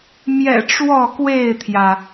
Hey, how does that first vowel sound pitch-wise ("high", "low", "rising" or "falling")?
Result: low